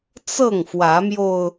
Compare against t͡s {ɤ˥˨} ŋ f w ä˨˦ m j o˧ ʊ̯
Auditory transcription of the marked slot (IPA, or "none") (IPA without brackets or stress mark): ɤ˥˨